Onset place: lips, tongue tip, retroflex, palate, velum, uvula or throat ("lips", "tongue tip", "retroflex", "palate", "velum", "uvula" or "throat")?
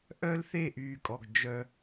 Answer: throat